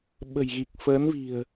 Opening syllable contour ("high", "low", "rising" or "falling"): low